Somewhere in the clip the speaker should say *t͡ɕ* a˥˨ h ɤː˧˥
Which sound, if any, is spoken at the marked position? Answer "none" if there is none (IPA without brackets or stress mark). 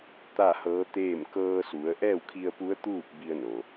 t̪